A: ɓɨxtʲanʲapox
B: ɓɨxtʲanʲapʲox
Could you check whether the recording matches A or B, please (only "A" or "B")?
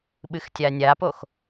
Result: A